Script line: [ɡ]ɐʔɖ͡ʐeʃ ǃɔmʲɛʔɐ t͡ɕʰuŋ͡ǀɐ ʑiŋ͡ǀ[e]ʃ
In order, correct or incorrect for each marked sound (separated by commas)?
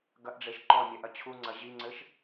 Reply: correct, incorrect